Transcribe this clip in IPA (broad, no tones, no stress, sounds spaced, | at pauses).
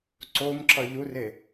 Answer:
ǀ o m ǁ ʌ ʎ u r e